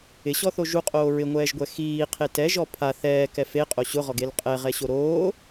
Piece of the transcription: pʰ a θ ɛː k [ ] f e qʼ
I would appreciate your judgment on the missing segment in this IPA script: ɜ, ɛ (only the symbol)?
ɛ